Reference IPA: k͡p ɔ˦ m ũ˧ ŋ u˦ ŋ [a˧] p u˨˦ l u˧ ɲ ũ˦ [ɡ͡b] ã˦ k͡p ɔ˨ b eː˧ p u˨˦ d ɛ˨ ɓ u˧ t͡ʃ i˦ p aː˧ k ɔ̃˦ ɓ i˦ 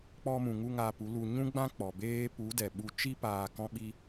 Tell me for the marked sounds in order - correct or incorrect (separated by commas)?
correct, correct